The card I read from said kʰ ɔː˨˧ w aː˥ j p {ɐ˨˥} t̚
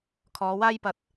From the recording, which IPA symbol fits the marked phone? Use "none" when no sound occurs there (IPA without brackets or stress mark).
ɐ˨˥